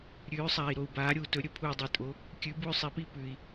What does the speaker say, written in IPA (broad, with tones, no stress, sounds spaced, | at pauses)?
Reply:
ɾʲ ʉː˨˥ sˤ aː˨ i̯ ɾ o˨ u̯ b aː˨˥ ɾʲ uː˨ t ɵ˨˥ ɾʲ ɵ˨˥ pʰ uː˨ dˤ e˨ tʼ o˨˥ | kʲ ʉ˨˥ b u˦ y̯ sˤ i˨˥ p i˦ p ʉː˨ i̯